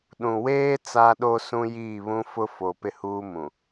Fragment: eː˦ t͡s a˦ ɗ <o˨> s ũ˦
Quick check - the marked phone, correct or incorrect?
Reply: incorrect